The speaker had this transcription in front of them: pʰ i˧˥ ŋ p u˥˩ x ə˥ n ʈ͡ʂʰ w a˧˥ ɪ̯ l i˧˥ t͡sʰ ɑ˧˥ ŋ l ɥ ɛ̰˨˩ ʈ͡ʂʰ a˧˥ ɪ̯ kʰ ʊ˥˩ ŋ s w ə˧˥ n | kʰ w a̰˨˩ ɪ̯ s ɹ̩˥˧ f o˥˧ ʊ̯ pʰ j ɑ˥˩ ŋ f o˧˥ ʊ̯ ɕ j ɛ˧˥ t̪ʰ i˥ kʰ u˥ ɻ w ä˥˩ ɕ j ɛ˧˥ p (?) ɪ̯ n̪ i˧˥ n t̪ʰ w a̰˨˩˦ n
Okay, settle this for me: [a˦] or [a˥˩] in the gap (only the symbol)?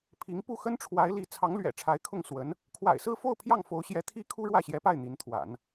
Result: a˥˩